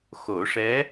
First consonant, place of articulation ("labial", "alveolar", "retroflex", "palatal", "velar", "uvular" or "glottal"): velar